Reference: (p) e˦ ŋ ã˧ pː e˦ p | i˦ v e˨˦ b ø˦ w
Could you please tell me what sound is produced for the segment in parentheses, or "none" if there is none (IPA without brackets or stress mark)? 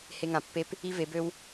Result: h